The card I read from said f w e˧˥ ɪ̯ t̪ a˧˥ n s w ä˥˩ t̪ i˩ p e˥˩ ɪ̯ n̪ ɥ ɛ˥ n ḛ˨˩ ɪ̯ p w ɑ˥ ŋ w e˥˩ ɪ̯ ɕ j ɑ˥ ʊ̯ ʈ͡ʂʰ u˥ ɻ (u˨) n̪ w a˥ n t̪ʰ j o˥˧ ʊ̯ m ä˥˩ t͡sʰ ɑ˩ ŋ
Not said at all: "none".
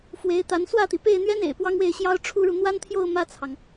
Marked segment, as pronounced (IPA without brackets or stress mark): u˨